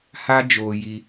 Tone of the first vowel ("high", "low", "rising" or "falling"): high